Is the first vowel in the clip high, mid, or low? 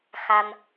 low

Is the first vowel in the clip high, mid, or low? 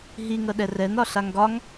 high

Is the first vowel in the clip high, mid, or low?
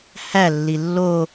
low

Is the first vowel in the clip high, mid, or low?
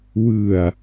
high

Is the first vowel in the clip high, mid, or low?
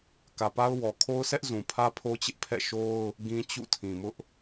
low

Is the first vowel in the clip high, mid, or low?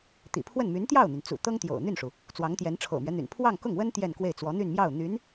high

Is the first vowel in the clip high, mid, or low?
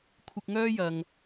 high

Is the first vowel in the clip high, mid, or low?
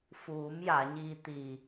high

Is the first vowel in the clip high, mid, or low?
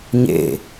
mid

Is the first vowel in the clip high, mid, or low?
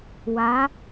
low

